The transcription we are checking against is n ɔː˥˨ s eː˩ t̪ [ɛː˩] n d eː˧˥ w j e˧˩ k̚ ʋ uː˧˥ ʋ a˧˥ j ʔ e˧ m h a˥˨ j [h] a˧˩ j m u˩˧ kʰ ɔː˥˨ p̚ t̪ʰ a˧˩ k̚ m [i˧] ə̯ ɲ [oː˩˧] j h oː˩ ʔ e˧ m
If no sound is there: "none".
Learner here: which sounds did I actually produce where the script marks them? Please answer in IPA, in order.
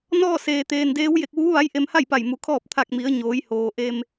eː˩, p, i˩˧, oː˩˧

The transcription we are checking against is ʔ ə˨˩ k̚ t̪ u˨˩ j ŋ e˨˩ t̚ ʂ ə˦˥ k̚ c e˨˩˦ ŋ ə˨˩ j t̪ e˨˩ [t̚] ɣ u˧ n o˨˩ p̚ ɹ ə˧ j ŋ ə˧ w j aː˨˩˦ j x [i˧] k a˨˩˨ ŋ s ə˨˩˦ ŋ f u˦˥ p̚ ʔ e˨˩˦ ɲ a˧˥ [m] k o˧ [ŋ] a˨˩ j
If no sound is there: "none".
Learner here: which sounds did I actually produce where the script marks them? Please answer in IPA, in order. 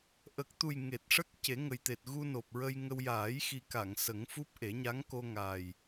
t̚, i˨˩, ŋ, ŋ

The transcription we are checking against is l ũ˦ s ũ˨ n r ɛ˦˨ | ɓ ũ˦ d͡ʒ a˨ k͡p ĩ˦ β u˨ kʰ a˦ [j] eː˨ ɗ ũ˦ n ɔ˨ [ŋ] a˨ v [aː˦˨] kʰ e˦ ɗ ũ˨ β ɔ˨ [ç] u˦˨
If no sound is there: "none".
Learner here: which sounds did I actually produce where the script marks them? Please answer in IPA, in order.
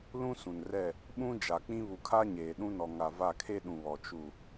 ɲ, ŋ, a˦˨, t͡ʃ

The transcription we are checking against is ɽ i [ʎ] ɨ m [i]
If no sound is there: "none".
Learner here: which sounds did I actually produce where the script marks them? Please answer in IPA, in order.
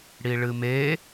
ɭ, e

